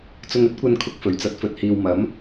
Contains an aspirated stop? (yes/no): yes